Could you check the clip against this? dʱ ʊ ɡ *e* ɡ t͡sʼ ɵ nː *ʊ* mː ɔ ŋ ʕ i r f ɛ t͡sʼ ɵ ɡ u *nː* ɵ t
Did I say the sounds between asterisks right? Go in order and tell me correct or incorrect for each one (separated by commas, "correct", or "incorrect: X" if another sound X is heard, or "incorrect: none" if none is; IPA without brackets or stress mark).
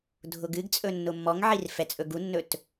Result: incorrect: ɨ, correct, correct